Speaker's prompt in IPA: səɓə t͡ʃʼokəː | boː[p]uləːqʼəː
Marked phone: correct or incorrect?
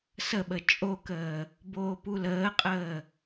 correct